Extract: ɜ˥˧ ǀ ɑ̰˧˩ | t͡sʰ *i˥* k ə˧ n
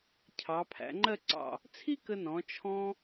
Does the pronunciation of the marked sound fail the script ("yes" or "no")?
no